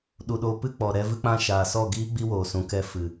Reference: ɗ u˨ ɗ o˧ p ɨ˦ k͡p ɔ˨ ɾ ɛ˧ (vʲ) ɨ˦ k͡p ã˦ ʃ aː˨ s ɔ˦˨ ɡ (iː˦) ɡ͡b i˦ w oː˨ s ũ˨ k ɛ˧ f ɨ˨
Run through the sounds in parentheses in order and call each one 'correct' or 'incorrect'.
incorrect: v, correct

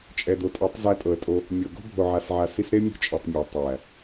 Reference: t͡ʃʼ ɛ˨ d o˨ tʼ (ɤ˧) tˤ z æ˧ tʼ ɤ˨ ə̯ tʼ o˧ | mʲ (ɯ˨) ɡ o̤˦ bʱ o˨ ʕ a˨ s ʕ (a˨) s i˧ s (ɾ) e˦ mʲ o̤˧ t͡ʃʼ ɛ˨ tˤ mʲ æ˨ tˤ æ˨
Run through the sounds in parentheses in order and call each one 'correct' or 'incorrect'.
incorrect: ɤ˨˦, incorrect: ɤ˨, correct, correct

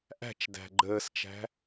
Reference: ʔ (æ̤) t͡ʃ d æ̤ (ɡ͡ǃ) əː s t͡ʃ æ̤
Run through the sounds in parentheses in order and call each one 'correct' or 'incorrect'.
correct, correct

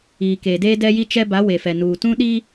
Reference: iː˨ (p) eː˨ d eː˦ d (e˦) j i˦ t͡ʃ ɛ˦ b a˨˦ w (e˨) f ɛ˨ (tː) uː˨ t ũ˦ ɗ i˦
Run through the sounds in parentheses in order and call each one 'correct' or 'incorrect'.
incorrect: k, incorrect: ɛ˦, correct, incorrect: n

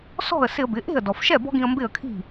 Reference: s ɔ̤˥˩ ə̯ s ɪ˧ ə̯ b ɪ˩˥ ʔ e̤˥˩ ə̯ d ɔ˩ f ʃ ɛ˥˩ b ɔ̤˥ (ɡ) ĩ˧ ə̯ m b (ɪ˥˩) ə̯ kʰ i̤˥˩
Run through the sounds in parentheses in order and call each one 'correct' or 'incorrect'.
correct, correct

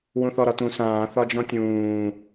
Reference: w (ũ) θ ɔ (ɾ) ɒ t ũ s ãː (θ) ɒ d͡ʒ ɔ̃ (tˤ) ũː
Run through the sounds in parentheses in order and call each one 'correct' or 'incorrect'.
correct, correct, correct, incorrect: tʲ

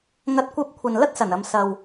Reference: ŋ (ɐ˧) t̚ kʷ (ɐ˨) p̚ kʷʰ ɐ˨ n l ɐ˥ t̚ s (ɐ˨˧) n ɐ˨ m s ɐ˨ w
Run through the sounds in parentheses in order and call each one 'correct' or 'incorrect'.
correct, incorrect: ɐ˧, incorrect: ɐ˨˩

